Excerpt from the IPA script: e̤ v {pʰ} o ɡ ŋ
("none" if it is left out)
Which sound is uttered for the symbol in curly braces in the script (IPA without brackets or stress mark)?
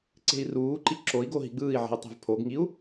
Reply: pʰ